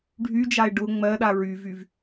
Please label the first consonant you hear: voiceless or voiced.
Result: voiced